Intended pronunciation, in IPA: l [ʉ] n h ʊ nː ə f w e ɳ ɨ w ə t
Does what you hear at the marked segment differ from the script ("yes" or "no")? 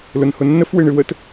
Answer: yes